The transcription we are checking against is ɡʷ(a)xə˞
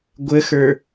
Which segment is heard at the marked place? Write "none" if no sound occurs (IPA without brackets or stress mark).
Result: ə